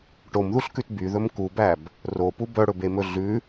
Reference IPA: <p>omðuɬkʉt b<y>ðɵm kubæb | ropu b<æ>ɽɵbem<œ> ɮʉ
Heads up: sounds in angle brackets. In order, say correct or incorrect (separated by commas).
incorrect, correct, incorrect, incorrect